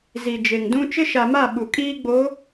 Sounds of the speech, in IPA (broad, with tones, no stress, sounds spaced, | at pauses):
z i˨ d͡ʒ e˨ ŋ d ũ˦ t͡ʃ ɪ˦ ʃ a˨ m a˦˨ ɓ u˨ kʼ iː˦ ɡ͡b o˨˦